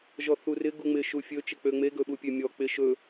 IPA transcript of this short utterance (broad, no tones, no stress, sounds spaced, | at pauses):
ʒ ɔ θ u r ɪ ɡ u ŋ͡m ɪ ʃ u fʲ ɵ t͡ʃ ɪ k͡p ø ŋ͡m e ɡ ɵ ɓ u pʲ ø mʲ ɔ k͡p ɪ ʃ ɵ